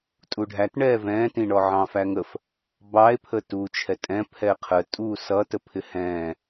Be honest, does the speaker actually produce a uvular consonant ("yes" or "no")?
yes